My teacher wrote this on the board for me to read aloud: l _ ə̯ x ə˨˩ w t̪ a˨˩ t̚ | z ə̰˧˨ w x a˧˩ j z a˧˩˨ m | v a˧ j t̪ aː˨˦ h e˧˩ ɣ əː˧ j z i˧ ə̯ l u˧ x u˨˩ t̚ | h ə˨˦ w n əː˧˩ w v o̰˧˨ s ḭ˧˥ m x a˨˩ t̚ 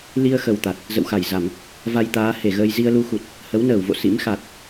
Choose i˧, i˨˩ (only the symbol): i˧